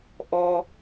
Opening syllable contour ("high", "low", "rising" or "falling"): high